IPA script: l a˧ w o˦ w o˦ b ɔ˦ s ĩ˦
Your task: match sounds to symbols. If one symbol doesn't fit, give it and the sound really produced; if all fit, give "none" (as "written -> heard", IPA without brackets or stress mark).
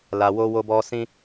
none